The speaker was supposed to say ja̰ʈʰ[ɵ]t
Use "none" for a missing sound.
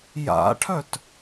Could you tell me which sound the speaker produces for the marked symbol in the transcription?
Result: œ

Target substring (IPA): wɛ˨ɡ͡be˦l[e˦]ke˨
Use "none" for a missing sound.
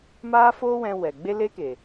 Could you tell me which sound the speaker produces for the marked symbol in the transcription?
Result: e˦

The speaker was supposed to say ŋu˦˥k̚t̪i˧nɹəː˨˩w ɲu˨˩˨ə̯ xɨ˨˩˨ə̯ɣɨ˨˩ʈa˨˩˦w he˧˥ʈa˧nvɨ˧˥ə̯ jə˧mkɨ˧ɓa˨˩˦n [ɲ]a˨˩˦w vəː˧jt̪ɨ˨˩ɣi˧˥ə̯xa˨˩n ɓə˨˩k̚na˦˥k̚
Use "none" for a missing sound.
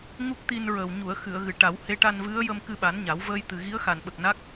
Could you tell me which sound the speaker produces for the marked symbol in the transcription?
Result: ɲ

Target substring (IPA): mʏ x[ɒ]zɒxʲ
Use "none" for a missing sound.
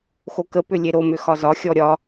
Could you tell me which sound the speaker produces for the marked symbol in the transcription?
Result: ɒ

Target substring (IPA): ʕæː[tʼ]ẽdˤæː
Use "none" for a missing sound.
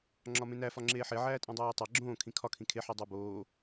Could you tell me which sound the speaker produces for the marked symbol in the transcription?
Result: tʼ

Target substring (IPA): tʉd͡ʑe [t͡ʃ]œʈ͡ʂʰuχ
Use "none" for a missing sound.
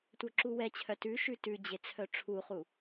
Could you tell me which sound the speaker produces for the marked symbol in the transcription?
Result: t͡sʰ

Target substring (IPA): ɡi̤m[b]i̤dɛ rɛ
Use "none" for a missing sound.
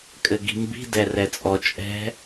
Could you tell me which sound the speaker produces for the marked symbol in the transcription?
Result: b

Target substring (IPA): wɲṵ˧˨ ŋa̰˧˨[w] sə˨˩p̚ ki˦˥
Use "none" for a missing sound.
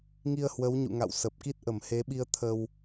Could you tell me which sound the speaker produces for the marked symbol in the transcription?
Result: w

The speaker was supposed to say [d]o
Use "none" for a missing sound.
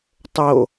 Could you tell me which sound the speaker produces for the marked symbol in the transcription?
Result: tˤ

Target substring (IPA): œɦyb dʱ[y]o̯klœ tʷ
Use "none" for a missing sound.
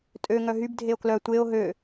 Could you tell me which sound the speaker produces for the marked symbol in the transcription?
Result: e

